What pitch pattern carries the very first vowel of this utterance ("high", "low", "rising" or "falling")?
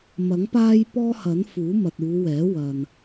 rising